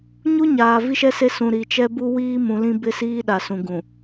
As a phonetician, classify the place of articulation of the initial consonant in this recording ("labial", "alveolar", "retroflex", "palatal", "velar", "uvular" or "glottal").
palatal